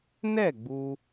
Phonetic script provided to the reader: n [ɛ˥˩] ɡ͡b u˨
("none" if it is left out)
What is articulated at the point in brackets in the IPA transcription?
ɛ˥˩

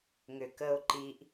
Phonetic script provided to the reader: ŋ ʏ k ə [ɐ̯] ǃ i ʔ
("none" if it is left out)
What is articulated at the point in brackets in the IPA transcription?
o̯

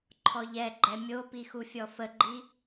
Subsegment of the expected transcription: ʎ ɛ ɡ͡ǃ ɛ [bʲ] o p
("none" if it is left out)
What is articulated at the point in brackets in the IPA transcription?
mʲ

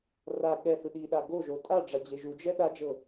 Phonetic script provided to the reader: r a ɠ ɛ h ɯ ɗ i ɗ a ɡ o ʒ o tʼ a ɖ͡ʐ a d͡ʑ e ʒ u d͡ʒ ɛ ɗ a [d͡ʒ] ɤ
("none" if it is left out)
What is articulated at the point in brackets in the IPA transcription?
d͡ʒ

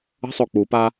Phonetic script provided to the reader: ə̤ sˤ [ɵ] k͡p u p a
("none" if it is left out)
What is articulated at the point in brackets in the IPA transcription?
o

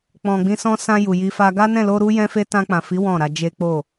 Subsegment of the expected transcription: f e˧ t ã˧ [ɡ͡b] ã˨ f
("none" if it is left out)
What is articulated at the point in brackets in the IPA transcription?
k͡p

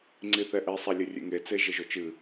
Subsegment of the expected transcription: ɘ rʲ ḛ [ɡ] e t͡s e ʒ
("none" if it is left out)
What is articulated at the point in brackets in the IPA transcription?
ŋ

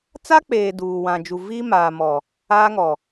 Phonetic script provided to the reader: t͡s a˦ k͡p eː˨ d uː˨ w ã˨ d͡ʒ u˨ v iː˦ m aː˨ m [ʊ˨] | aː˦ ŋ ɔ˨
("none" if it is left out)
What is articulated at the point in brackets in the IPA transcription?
ɔ˨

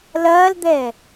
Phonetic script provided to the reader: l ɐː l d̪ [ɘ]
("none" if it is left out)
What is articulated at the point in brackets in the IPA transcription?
ɛ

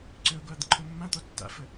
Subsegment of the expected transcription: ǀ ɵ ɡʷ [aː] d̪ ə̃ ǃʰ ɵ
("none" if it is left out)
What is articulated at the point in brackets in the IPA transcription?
a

